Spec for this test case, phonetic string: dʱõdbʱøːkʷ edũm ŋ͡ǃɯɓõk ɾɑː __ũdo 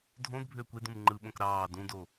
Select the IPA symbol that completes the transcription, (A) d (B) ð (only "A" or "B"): A